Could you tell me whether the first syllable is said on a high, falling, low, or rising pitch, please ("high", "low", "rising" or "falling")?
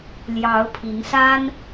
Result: rising